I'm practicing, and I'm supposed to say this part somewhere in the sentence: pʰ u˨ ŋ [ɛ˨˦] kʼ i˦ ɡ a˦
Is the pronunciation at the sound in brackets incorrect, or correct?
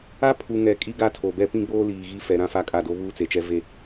correct